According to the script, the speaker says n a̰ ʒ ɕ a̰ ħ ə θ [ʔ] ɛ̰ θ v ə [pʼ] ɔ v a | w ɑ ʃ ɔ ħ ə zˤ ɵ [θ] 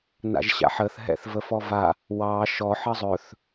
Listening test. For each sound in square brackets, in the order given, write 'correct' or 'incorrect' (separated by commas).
incorrect, incorrect, correct